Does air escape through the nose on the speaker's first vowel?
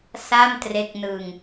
no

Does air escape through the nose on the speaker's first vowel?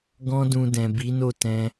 yes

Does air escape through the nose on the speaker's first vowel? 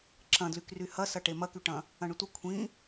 yes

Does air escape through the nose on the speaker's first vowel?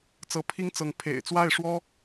no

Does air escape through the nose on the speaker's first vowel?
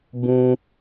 yes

